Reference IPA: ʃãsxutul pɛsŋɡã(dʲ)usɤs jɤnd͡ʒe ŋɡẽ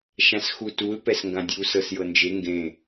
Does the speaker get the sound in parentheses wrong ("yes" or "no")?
no